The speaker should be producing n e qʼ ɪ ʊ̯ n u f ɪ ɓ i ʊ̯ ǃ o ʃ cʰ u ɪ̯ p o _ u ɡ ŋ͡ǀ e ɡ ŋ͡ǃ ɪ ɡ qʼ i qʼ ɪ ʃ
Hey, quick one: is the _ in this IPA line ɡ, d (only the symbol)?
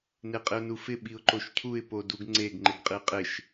d